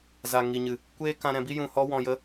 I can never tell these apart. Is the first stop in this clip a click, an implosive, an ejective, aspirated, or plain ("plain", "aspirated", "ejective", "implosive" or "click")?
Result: plain